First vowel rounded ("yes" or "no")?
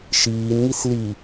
no